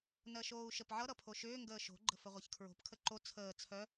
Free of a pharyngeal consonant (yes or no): no